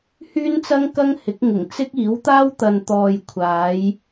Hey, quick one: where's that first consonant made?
throat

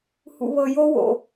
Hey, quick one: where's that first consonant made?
throat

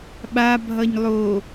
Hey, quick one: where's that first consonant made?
lips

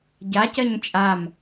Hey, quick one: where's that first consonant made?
palate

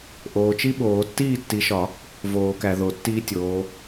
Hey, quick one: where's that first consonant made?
throat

